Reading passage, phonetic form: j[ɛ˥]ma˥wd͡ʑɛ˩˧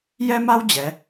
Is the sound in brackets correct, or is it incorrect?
correct